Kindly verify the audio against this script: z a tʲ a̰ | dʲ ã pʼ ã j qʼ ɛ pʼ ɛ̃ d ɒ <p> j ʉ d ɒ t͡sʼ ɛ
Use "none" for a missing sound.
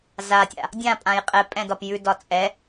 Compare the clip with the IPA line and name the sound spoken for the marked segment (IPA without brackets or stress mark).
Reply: p